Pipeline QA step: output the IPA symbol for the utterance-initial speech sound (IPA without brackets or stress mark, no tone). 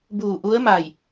b